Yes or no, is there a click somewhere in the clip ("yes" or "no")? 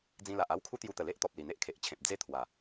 no